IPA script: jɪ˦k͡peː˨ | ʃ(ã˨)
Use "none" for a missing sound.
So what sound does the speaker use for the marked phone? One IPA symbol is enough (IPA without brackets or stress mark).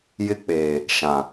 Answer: ã˨